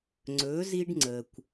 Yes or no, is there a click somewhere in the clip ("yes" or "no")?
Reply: yes